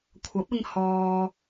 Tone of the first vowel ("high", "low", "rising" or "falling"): rising